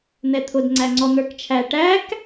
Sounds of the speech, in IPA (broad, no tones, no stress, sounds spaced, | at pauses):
n̪ ɛ t̪ʰ ʊ d ŋ͡ǀ æ ŋ͡ǀ ɔ n̪ ə˞ k t͡ʃʰ æ ʈ æ k